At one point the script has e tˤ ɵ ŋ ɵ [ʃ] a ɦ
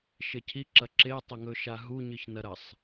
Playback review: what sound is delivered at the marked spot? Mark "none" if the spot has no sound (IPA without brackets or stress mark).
ʃ